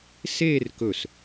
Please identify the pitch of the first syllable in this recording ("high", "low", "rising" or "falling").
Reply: falling